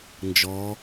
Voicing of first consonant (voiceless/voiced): voiced